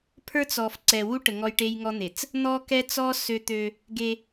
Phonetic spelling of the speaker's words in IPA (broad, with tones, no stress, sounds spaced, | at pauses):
pʰ ə˞˦ t͡s ɔ˨ f ǀ ɛ˨ w u˦ ʈ ə˨ ŋ ɔ˦ j ʈ e˦ j ŋ ɔ˦ n̪ e˨ t͡s | n̪ ɔ˦ k ɛ˦ t͡s ɔ˦ s ø˦ t̪ ø˦ | ɡ e˦